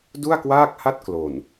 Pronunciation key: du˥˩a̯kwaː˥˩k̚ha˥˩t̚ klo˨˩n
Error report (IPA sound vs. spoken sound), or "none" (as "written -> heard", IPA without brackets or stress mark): none